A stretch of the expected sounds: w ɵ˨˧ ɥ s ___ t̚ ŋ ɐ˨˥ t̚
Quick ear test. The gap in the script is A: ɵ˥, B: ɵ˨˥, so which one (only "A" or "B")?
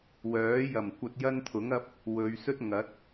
A